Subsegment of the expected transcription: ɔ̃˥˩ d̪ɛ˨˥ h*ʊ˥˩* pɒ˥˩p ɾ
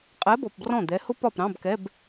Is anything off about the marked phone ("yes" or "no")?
yes